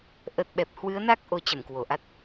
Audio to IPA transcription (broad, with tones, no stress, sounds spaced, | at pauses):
ʔ ə˨˩ t̚ ɓ ɛ˨˩ p̚ h w ɨ˨˦ ə̯ n a˦˥ k̚ ʔ o˨˦ t͡ɕ ə˧˩ m k w o˧˩ ʔ a˦˥ t̚